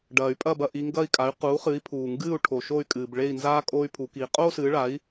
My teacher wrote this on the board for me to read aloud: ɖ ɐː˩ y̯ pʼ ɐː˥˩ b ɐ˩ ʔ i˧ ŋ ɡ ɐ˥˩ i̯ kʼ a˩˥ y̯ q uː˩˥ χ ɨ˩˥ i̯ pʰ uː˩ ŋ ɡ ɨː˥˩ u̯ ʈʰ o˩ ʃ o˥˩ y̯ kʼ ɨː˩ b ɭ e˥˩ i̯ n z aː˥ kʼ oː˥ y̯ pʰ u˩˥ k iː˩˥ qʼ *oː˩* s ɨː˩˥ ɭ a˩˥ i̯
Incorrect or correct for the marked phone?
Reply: incorrect: oː˥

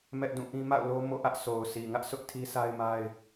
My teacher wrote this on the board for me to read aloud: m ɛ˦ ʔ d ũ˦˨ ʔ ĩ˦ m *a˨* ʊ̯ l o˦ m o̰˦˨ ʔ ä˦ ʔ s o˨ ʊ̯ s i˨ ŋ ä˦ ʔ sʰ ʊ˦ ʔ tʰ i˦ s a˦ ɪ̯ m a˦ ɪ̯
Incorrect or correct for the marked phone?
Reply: incorrect: a̰˦˨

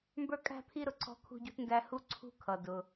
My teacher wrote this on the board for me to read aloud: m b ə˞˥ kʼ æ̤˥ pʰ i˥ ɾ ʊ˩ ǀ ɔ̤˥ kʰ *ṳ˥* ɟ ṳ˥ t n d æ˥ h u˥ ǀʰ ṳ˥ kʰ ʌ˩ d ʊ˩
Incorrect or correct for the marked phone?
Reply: correct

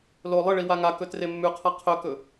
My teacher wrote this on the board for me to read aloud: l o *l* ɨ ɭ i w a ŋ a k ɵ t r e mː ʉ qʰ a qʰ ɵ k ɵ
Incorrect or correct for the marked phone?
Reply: incorrect: lˠ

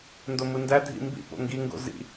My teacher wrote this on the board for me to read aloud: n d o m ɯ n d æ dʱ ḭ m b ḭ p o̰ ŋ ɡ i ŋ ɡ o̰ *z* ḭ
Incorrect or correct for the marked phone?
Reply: correct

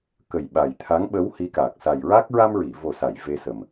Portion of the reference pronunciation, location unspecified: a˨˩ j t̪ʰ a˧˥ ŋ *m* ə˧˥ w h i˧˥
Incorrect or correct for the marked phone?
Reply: incorrect: ɓ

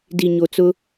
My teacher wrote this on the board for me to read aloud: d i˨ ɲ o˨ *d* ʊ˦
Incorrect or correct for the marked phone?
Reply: incorrect: t͡s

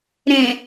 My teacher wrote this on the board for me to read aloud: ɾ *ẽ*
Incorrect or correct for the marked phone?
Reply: correct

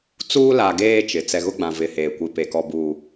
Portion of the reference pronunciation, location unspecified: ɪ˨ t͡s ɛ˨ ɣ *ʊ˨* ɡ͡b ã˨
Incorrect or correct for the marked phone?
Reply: incorrect: ʊ˦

